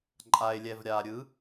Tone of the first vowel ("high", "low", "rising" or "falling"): low